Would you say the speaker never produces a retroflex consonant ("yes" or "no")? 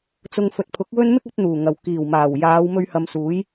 yes